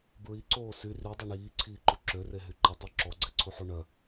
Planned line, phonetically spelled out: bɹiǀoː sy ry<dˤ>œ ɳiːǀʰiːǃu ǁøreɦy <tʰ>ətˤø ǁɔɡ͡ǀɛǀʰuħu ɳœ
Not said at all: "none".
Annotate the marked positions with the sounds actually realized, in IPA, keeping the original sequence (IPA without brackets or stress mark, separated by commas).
dˤ, ǃ